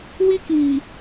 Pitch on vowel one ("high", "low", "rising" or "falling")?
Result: high